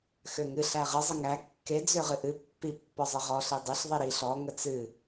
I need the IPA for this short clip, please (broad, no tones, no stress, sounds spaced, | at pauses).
x ø ŋ ɨ ɬ æ ʁ ə zˤ ə ŋ æ kː e d͡z ø ʁ ɨ ʔ ɨ pː i pː ɔ zˤ ə ʁ ɔ ɬ i dˤ e ɬ ðˤ i ɾ i ɬ ɔ ŋ ə t͡s ɨ